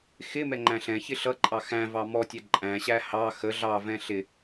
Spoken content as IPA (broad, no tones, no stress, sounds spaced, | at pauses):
x ɪ m ɛ ŋ͡ǃ æ̃ ɬ ɛ̃ ç ɪ ɬ ʌ ǃʼ ɑ x æ̃ v ɑ m ɔ tʲ æ ǃʼ æ̃ ɕ æ h ɑ x ə ɮ ɑ v ɛ̃ ɬ ɪ